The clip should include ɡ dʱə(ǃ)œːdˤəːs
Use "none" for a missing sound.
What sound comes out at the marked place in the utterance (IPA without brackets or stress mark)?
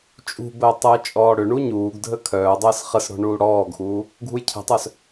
kʰ